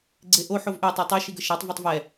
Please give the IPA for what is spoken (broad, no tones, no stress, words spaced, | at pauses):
ɡ͡ǀeʔo ħovʔø tˤytˤɛ ʃiɡəʃatˤ vøtˤvɛ